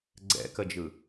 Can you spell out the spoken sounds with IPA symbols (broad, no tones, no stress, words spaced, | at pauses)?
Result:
ɡ͡ǀɛ̰kəd͡ʒɯ